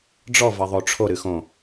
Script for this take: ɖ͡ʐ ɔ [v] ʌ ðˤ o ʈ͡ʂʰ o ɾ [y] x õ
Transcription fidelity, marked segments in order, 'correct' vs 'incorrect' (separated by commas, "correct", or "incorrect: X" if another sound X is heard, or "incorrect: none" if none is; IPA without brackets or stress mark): correct, incorrect: ɨ